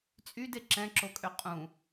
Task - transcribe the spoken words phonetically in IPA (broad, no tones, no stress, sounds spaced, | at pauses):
t͡sʼ y d e ǁ ɛ̃ ǁ o kʼ ø qʼ ũ